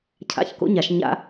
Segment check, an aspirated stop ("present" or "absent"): present